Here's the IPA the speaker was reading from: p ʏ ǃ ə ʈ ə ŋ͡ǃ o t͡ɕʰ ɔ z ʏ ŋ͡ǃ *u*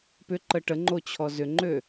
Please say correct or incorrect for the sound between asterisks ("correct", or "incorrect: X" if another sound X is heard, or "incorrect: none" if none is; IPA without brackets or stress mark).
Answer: incorrect: ø